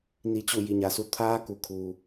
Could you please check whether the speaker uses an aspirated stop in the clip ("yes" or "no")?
yes